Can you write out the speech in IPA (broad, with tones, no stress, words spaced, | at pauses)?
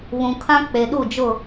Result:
βũ˨kʰã˦ k͡pe˨ɗu˦˨d͡ʒʊ˦˨